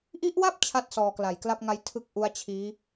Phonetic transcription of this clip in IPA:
ʔi˦˥ʔwa˥˩p̚ t͡ɕʰa˥˩t̚sɔː˧kla˨˩j kla˥˩p̚ŋa˦˥j tʰɯ˥˩k̚ʔu˦˥a̯t͡ɕʰiː˦˥

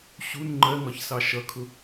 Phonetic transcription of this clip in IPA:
ɕun ŋ͡ǃɜŋɒçsɑ ʃʌkʰʊ

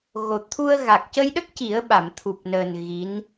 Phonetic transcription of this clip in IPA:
ɣo˨˩ t̪ʰu˧ə̯ ɣa˨˩k̚cə˧jɗə˦˥k̚ ci˨˩˦ə̯ɓa˨˩˨m t̪ʰu˨˩p̚nəː˨˩n ɣi˧˥n

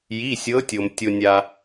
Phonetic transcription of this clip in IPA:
ji˩˧˩sʲɤ˨˦tʲo˩m tʲo˩nʲa˩

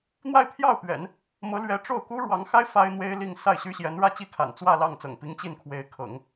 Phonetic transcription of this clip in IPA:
n̪wa˥˧ɪ̯pʰjɑ˥˩ʊ̯pɥɛ̰˨˩˦n | mɤ˧˥lɥɛ˧˥ʈ͡ʂo˥˩ʊ̯ ku˥ɻwɑ˧˥ŋxa˥ɪ̯ fa˥ɪ̯n̪we˥ɪ̯li˥˧ŋ sa˥˩ɪ̯ɕy˥ɕjɛ˧˥n ɻä˥˧t͡ɕi˥˩kʰa̰˨˩n t͡swä˥˧ lɑ˥˩ŋ t͡sɤ̰˨˩ŋpi˧˥ŋ t͡ɕi˥˩nkʰwe˧˥ɪ̯ kʰɤ̰˨˩˦ŋ

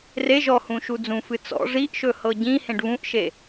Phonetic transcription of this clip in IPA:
re ʒɔhũʃu d͡zũfɨ t͡sɔ̰ ʐiʔʃɵ hɤɟĩ hẽɖβũʔʃe

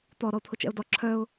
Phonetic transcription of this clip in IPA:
t̪ɔ ɾɔʊ̯t̪ʰʊt͡ʃɛ̰ʊ̯dɔ ǁʰœʊ̯

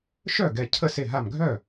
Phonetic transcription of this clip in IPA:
ʃœ˥˩ɡɛ˧˩ cʰə˥˩ se˧˩ɦa˧˩mɡʱœ˥˩

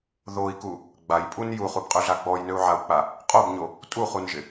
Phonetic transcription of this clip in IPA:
ðoi̯ku | ɡ͡bajpʼun juχubqʼøɮa ɡ͡bɔjnøu̯ʕau̯k͡pa | qʼobɲo | tʼuχunʒɪ

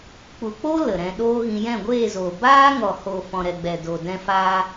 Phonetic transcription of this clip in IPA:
k͡pu˨k͡po˦ lə˨ɾɛ̃˧ɗoː˦ɣĩ˧ jɛ̃˦˨ɡʷeː˦˨zoː˨ baː˦ŋɔ˨ho˨ fɔ̃˨ɾɛ˨ɡ͡bɛ˨ do˨dɛ̃˧faː˧

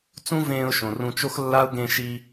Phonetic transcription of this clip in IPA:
t͡sũ˦vẽː˧ʊ̯ʃõ˨ rũ˧t͡ʃo˦xlːa˦ʊ̯ ɡẽ˧ʃi˧

